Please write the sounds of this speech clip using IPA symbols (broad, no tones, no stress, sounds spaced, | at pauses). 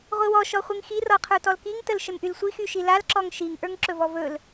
ʁʷ i w ɔ ʃ ɔ χʷ i ŋ x i r ɔ qʰ ə˞ t ɔ l k i ŋ t ə l ʃ ə n ʔ y l sʷ i x y ʃ i l a l ǁ ɔ ŋ ʃ i ŋ ʔ ə˞ ŋ ǁ ɵ v ɔ v ɵ l